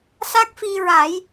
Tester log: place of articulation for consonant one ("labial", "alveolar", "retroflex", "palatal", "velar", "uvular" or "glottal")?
alveolar